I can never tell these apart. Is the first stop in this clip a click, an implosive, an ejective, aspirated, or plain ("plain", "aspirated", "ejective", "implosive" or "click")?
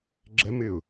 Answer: click